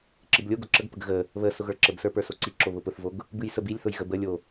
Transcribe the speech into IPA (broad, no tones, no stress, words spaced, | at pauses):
ǁɨblʲoɡo ǁəɡpəɡ ɣə | βə sʊɣə˞ǁəbsə˞ pə˞soǀiǁo βʊpʊθvoɡ | bɨjsəbilʲθʊj ɣəbəlʲo